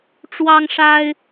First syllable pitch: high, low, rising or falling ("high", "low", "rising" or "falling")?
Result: high